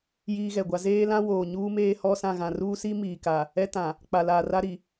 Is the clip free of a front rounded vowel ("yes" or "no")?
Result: yes